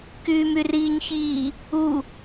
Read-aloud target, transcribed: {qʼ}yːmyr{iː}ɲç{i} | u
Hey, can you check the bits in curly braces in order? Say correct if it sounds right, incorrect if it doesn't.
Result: incorrect: k, correct, incorrect: iː

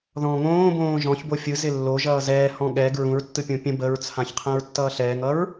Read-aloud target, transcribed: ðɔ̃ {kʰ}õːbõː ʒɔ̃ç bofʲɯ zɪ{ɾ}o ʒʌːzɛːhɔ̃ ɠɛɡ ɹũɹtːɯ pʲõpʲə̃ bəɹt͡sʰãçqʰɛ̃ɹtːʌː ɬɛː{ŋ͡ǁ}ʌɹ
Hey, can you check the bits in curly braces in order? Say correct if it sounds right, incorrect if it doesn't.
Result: incorrect: ŋ, incorrect: lː, incorrect: ŋ

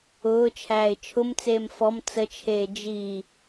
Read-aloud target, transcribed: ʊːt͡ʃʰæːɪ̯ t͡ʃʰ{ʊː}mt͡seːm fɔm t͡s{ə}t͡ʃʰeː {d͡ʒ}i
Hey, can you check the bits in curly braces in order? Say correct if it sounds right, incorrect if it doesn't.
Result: incorrect: ʊ, correct, correct

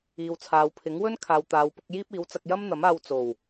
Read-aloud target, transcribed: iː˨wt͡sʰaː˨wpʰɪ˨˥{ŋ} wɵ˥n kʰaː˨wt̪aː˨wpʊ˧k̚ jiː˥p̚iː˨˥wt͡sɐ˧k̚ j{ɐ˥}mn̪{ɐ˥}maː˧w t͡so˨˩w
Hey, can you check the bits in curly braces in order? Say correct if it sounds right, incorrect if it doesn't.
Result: correct, correct, incorrect: ɐ˨˥

